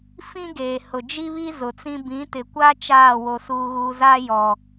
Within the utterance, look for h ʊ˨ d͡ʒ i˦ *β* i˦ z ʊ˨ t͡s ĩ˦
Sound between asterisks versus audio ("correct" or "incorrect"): correct